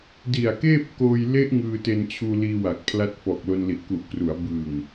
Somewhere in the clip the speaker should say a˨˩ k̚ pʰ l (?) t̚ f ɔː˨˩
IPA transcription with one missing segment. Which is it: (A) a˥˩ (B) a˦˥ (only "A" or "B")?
B